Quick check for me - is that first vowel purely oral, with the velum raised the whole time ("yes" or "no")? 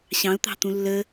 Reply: no